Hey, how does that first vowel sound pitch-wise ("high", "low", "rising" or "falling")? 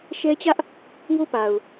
high